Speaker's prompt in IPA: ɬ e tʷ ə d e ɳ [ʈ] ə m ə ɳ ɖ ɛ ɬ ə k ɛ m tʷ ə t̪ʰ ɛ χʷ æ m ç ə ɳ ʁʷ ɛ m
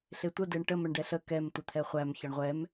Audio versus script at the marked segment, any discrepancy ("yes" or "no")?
no